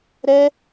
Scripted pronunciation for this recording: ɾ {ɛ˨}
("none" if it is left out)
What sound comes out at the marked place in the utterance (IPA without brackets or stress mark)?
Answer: ɛ˦